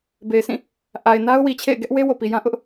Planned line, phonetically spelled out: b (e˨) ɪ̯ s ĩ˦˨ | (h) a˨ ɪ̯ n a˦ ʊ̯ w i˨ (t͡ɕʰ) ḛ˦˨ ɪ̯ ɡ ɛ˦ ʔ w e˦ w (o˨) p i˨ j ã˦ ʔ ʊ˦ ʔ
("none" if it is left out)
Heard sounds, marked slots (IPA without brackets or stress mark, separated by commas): e˨, ʔ, t͡ɕʰ, o˨